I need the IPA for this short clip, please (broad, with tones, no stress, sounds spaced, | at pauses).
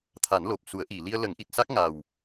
t̪ʰ a˨˩˦ n l o˨˩ p̚ s u˨˩˦ ə̯ ʔ i˨˩˨ l i˧ ə̯ l ə˨˩˦ ŋ ʔ i˨˩ t̚ s a˦˥ k̚ ŋ a˨˩ w